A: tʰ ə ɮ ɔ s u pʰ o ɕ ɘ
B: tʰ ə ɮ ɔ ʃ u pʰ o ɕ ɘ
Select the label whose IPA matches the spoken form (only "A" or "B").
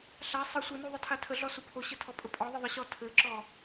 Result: A